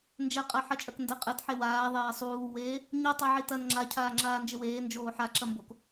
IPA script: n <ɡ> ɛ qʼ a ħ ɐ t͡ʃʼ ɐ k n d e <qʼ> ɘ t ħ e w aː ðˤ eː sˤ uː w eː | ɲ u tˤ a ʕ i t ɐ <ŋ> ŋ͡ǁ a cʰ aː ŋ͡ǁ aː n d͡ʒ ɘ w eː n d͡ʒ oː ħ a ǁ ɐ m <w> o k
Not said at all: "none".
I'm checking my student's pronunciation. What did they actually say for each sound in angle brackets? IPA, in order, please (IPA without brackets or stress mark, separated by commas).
d͡ʒ, qʼ, n, b